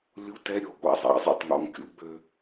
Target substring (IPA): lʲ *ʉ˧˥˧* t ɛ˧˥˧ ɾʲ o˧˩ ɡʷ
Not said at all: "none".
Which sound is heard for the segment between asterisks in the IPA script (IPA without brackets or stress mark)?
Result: u˧˥˧